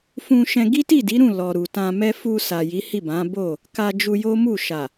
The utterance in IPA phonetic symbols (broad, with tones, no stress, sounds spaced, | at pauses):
f ũ˧ ʃ ɛ̃˧ ɡ i˦ t i˦˨ d i˨˦ ɾ ũ˦˨ l ɔ˨ ɾ u˨ t ã˧ m ɛ˦ f u˧ s a˨ j i˨˦ h i˦˨ b ã˨˦ b o˦˨ | k a˧ d͡ʒ u˧ j o˦ m u˦˨ ʃ a˨